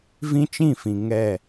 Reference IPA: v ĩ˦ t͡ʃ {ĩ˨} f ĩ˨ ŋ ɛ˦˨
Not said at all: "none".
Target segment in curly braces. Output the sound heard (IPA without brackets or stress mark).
ĩ˦˨